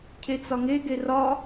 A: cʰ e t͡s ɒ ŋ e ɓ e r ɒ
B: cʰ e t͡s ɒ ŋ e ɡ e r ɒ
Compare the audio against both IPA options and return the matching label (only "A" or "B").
B